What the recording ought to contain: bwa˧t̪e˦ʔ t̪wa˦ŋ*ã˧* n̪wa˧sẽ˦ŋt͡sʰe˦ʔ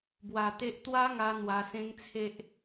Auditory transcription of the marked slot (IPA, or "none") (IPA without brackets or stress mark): a˧